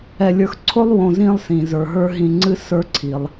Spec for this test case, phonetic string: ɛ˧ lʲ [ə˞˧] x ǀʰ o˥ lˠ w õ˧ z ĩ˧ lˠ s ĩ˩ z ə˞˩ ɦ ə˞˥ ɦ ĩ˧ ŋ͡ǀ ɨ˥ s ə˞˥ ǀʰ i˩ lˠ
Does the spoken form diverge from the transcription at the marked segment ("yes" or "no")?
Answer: no